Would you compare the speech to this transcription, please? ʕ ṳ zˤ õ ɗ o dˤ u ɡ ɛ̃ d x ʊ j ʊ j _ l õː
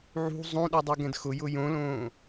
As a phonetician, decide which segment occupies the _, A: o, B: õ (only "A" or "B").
B